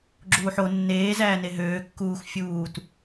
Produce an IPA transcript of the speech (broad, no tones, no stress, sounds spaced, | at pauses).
ɡ͡ǁ uː ħ o nː eː z æː n e ɦ øː kː uː x fʲ uː t